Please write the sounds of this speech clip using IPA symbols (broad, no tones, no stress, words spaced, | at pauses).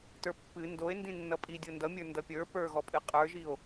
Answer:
tə˞pːɨ ndoe̯ ndĩnːʌpʼi dʲondʌmʲə˞ ndʌpʲə˞ pə˞ɣɔpʼɨ qʼə˞ʒio̯